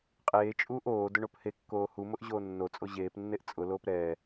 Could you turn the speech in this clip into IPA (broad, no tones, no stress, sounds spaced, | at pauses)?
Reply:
qʼ eː t͡ʃʼ uː ʔ oː d ʊ ɳ o p h e kː oː h u m ʊ ʔ ʑ oː nː o t͡sʼ o ʑ eː p nː e ʔ t͡sʼ ʊ l oː p ɾ ɛː